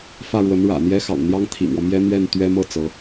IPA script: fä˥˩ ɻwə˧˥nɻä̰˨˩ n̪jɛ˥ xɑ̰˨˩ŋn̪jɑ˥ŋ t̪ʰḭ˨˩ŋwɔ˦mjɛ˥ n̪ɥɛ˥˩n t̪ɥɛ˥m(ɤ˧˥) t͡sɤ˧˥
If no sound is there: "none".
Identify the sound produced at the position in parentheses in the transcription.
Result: ɤ˥˩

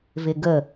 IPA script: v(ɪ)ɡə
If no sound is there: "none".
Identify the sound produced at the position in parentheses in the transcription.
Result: ɪ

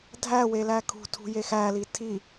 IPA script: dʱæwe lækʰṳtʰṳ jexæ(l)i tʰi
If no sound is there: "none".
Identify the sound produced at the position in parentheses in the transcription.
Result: l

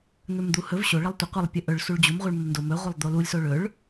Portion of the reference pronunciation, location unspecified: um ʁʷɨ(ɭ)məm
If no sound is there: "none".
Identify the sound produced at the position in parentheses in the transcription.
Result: ɭ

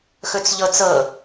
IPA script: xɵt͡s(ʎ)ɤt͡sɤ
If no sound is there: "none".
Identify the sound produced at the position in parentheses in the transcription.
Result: ʎ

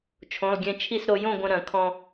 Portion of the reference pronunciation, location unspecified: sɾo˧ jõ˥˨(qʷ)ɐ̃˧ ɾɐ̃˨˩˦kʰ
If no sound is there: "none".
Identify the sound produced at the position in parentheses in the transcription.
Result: ɡʷ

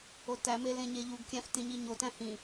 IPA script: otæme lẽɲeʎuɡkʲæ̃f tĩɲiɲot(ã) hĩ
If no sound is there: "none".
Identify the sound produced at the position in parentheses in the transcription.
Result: æ̃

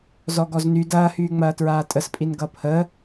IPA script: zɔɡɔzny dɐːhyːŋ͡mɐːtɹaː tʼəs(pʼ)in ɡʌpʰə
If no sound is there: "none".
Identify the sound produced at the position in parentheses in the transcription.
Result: pʼ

